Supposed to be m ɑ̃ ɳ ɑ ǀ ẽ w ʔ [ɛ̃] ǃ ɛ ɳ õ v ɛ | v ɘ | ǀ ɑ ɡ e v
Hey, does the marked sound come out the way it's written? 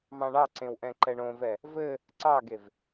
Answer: yes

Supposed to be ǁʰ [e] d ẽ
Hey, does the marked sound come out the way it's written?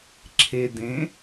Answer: yes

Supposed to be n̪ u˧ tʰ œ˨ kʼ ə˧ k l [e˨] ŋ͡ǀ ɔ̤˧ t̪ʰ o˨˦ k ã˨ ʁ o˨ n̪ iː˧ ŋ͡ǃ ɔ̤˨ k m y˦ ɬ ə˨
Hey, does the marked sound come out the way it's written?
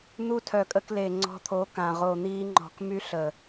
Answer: yes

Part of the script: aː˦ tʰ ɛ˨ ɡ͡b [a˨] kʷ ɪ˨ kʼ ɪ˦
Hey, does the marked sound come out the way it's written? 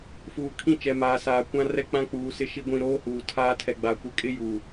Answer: yes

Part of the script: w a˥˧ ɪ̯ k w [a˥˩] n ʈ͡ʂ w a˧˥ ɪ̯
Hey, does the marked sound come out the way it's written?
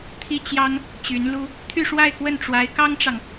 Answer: no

